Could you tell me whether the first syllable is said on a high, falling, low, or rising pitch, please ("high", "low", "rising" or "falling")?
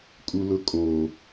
high